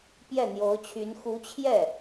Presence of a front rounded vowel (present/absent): present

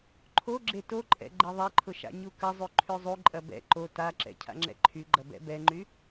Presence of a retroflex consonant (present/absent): absent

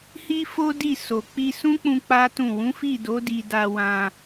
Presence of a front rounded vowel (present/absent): absent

